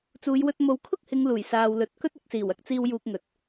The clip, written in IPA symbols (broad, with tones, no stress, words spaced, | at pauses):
t͡suː˨˧jwɵ˧t̚ mo˨wkʰʊ˥k̚hɪ˨˧ŋ luː˨˩j saː˨wlɵ˨˥t̚ kɵ˥t̚ɪ˨˥k̚siː˨˩w ɐ˧k̚t͡siː˧w juː˧k̚ŋɵ˨t̚